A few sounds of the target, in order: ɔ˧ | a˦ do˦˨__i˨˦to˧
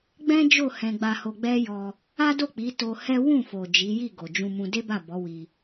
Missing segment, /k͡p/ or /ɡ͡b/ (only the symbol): k͡p